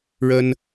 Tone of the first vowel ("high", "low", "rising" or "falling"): high